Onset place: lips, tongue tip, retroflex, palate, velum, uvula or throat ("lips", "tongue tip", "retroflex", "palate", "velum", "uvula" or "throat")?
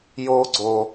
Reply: palate